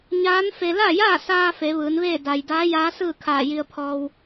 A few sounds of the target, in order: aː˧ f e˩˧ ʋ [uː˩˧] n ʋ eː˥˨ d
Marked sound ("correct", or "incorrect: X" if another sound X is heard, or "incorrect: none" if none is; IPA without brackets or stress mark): incorrect: ɯː˩˧